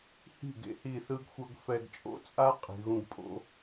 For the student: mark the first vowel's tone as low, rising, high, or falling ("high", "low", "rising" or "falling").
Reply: falling